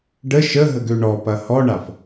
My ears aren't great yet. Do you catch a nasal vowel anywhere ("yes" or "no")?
no